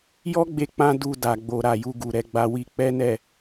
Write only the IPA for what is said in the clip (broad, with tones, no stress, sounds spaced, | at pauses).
j ɔ˦ ɡ͡b e˧ k͡p ã˦ d u˧ d a˨ ɡ͡b o˨ ɾ a˨ j u˧ ɡ u˨ ɾ ɛ˧ ɡ͡b a˧ w i˦ k͡p ɛ˦ n ɛ˦˨